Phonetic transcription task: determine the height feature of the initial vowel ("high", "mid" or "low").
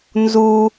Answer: high